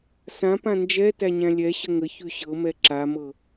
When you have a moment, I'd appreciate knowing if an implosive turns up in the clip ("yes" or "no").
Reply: no